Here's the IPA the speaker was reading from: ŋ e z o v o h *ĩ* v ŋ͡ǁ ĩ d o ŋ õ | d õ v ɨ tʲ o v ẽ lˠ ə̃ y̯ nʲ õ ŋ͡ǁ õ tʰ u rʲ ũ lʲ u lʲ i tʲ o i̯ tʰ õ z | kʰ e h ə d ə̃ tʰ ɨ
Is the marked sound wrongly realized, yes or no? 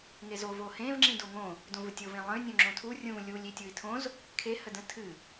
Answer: yes